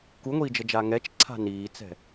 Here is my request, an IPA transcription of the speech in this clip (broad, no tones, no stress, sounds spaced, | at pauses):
k u ŋʷ iː d͡ʒ ɤ d͡ʒ aː ŋ ɛ t͡ʃ ǀʰ a̤ n iː t͡s ɛ̤